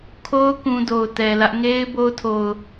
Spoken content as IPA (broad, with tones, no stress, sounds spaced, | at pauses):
kʰ o˦ ʊ̯ k ũ˦ d o˨ ʊ̯ t ɛ˨ l ä˦ ʔ ŋ e˦ ɪ̯ b o˦ ʊ̯ tʰ o˨ ʊ̯